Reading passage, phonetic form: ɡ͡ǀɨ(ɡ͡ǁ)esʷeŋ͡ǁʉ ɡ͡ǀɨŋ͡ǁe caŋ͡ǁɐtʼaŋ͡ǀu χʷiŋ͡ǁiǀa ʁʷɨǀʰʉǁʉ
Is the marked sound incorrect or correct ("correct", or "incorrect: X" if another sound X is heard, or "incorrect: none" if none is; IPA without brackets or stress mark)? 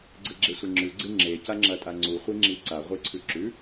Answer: correct